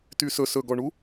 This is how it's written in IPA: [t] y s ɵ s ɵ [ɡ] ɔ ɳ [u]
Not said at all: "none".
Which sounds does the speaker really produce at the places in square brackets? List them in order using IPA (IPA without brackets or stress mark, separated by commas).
t, ɡ, u